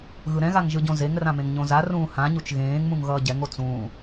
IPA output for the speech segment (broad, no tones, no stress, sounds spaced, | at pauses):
ɣ ɯ ɾ ɛ̃ ɣ a ŋ ʒ ɯ ɟ õ z e ŋ r ã m ẽ ŋ ɲ õ z a r ũː h ã ɲ u t͡ʃ ɣ ẽː ŋ m ũ ŋ ɣ ʌː ɟ ɛ ŋ o t͡s ũː